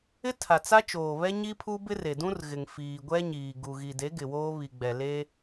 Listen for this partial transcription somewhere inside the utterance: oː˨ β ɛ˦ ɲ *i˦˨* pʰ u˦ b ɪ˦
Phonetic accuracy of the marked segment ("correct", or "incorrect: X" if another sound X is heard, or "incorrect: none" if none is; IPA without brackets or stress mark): incorrect: i˦